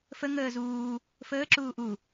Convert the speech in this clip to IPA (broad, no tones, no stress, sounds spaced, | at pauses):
f ə ŋ əː z uː | f əː ǁ uː ʔ u